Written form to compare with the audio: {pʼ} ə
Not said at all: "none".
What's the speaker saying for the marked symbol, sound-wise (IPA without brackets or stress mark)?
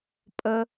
pʼ